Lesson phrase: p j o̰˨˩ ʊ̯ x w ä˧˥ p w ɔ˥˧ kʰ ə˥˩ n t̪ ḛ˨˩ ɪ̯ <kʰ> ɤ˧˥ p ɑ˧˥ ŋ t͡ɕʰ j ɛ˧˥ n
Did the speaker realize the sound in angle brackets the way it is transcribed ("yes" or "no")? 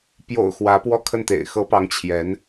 no